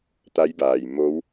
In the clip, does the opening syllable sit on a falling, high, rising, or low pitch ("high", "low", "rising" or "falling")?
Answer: rising